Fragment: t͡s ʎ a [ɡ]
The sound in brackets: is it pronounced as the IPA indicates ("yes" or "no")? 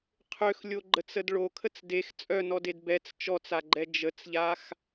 no